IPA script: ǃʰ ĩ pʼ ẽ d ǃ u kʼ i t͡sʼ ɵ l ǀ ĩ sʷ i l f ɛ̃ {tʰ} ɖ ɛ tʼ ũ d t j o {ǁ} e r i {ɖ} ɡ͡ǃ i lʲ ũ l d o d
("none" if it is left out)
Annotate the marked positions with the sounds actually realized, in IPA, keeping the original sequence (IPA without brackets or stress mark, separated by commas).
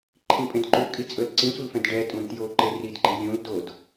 d, ǃ, d